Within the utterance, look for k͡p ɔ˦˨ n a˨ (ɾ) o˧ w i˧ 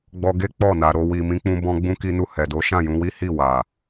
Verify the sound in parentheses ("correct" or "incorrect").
correct